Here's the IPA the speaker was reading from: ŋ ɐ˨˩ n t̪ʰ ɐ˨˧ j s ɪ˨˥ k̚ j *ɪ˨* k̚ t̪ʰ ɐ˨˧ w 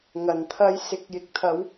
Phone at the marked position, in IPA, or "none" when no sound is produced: ɪ˨˥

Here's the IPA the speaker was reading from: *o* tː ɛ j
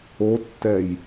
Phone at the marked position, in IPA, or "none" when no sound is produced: o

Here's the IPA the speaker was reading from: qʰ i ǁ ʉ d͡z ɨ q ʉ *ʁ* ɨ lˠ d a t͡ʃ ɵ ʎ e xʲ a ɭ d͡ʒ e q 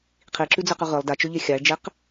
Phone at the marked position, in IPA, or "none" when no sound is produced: ʁ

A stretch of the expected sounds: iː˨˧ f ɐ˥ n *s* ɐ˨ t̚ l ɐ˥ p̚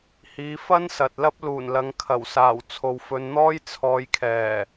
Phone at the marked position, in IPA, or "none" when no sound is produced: s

